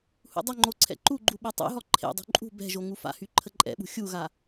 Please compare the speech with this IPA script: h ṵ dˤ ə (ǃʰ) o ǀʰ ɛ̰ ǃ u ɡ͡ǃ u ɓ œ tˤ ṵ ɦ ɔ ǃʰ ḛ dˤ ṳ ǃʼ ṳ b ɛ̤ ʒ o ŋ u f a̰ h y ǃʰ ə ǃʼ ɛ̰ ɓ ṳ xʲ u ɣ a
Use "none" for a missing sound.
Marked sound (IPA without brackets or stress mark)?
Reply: ŋ͡ǃ